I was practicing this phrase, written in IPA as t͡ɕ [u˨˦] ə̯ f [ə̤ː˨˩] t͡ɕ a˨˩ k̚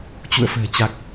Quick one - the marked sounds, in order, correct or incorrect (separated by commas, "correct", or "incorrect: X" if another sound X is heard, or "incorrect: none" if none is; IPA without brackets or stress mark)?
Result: incorrect: ṵ˧˨, correct